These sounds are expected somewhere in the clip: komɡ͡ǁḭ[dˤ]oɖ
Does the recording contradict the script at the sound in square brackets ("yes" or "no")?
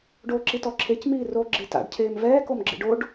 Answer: yes